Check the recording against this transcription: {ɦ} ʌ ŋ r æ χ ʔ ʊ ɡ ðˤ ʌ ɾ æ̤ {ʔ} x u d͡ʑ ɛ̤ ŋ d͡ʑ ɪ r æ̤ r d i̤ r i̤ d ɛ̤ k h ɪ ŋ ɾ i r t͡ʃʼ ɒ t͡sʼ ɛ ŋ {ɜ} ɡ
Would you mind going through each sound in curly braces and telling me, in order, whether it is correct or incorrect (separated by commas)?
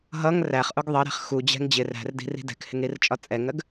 correct, incorrect, correct